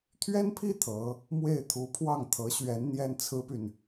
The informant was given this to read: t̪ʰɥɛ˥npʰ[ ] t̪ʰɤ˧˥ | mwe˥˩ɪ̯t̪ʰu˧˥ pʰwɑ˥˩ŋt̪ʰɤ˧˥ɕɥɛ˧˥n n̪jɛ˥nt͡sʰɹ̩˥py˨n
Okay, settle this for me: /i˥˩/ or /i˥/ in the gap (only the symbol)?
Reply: i˥˩